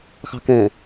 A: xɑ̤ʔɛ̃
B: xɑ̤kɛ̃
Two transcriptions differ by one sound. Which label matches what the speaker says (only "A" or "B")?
B